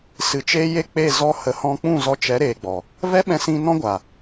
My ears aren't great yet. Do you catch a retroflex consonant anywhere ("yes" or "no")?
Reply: no